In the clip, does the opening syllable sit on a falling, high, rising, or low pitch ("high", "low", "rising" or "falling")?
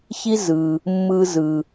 high